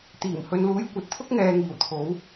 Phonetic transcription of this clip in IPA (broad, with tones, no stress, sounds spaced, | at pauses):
t̪ iː˨˩ m h ɵ˨ n l uː˨˧ j kʷ ɐ˨ t̚ t̪ʰ ʊ˥ k̚ ŋ ɛː˨ ŋ iː˨˩ w t̪ʰ o˨˧ w